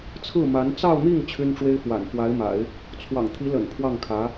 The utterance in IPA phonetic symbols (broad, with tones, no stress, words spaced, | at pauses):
t͡sʰɹ̩˥˩ma˧˥n t͡sɑ˥˧ʊ̯n̪i˥˩ŋ t͡ɕʰy˥nʈ͡ʂwe˥ɪ̯fwa̰˨˩n fwa˧˥ɪ̯ma̰˨˩˦ɪ̯ | t͡sʰwɑ̰˨˩ŋt̪ʰi˧˥lə̰˨˩n pʰwɑ˥˩ŋkʰä˧˥